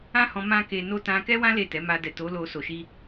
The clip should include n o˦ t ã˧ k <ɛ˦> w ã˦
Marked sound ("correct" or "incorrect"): correct